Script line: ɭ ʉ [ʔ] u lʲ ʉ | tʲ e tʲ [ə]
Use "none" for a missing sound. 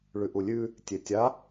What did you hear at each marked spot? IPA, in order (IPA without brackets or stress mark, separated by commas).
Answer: ʔ, a